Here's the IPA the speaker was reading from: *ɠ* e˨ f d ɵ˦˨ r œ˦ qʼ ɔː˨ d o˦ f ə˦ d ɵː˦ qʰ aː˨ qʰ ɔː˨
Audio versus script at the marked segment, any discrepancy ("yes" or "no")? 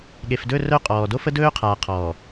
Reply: no